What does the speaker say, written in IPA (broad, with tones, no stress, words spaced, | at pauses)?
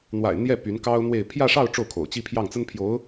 n̪wa̰˨˩ɪ̯ n̪jɛ˥˩ py˧˥nkɑ˥ʊ̯n̪we˥˧ɪ̯ pʰjä˥˧ʂɑ˥˧ʊ̯ ʈ͡ʂo˥˩ʊ̯kʰo̰˨˩ʊ̯t͡ɕi˥ pʰjɑ˥˩ŋt͡sə˥npʰjo˧˥ʊ̯